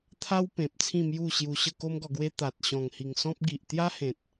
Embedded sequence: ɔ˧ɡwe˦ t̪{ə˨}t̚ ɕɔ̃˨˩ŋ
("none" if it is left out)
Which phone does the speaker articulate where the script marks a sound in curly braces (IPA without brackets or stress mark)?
a˨